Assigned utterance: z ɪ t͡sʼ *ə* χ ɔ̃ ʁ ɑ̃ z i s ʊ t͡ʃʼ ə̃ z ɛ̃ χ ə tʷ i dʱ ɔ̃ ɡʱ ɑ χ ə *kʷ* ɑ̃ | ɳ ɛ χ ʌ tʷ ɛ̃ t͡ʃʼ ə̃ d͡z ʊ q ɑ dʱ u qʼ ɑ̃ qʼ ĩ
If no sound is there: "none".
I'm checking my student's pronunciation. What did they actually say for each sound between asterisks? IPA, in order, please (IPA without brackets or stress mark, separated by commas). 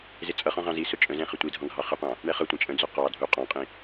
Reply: ʌ, qʷ